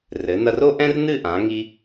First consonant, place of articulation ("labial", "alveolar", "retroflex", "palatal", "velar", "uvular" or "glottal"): alveolar